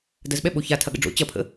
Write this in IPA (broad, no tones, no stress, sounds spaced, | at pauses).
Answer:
d ɐ z ɓ ɛ ɓ o ç a tʰ ɐ ɠ ə̰ ɖ͡ʐ o̰ t͡ɕ ɐ pʰ ə̰